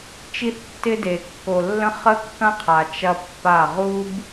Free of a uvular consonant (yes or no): no